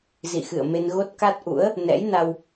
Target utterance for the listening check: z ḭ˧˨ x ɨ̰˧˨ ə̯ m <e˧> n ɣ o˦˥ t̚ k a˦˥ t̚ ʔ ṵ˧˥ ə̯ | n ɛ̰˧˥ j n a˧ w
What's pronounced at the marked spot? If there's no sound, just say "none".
e˧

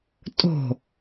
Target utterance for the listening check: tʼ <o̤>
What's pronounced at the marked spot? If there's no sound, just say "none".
o̤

